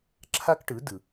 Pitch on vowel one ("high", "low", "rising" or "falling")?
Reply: high